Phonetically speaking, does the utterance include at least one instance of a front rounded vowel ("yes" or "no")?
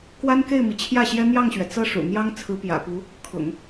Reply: no